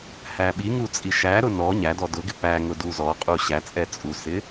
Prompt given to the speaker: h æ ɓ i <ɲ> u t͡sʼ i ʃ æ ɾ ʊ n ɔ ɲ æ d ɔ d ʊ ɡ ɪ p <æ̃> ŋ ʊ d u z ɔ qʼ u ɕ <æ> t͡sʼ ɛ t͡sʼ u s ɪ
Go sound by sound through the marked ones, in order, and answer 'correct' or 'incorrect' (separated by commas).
incorrect, incorrect, correct